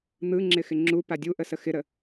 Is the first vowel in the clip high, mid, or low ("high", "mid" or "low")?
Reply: high